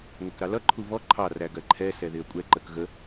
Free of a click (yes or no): no